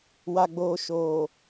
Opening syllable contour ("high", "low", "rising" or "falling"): low